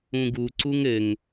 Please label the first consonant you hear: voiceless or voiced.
voiced